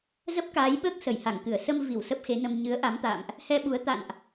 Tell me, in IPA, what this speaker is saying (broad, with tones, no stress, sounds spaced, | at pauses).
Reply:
z ə˦˥ p̚ k aː˨˦ j ɓ əː˦˥ k̚ s ə˧˩ j h a˧˩ ŋ k ɨ˧˩ ə̯ s ə˧ m v i˧˩ w s ə˦˥ p̚ x e˨˦ n ə˧ m ɲ ɨ˨˦ ə̯ ʔ a˨˦ m t̪ a̰ː˧˨ m ʔ | h ɛ˧ ɓ u˨˦ ə̯ t̪ a̰˧˨ n ʔ